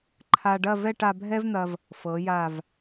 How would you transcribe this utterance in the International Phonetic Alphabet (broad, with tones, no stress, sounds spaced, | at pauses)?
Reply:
ǃʰ a˧ ɖ ɐ˥˧ v ɛ˥˧ ʈ a˧ bʱ ɛ˥ v n̪ ɐ˧ v | f ɤ˩˧ j a˧˩ v